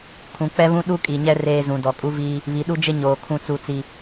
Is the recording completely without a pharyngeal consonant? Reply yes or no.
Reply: yes